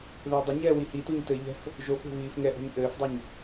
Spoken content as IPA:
ð ɘː dˤ ɘ ɲ ɛː w i h i t u ɲ t ɘ ʎ ɛ̤ f | ʒ o f o̤ β iː f ŋ ɛ ʔ o̤ ɲ ʔ ɘː f dˤ ɛ ɲ

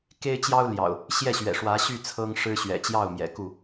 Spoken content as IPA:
k e˦ ɪ̯ t͡ɕ j ɑ˦ ʊ̯ l j ɑ̰˨˩ ʊ̯ | ɕ j ɛ˥˨ ɕ ɥ ɛ̰˨˩ ʂ w ä˨˦ ɕ y˥˨ t͡sʰ ɤ˦ ŋ ʂ ɻ̩˦ ɕ ɥ ɛ̰˨˩ t͡ɕ j ɑ˥˨ ʊ̯ m j ɛ̰˨˩ k u˥˨

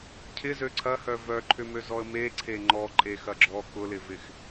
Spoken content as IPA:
cʰ ɪ z ø ǀʰ ɐ h œ v œ ǃʰ ʏ m ø z ɔ ə̯ m e ǀʰ e ŋ͡ǃ ɔ ǃʼ e x ɐ ɡ͡ǁ ɔ k ʊ l ɪ v ɪ x

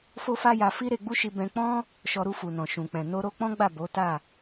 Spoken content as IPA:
f o˦ f a˦ j a˧ f i˦ ɾ e˧ ɡ͡b u˦ ʃ i˧ b ɛ̃˧ k͡p ɔ̃˦ | ʃ ɔ˧ ɾ u˧ f u˨ n ɔ̃˨ ʃ ũ˨ k͡p ɛ̃˨ n o˧ ɾ o˧ k͡p ɔ̃˦ ɡ͡b a˦˨ b o˨˦ t a˦˨

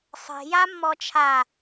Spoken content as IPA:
sˤ e̤ j a mː ɔ t͡ʃʰ a

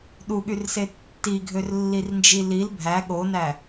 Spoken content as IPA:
ɗ u ɠ y r s e tː i ɡʱ ø r lː i r n d͡ʒ i l i l bʱ æ ɠ o n æ

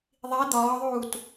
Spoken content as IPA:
ðˤ i d̪ ɒː ðˤ uː t

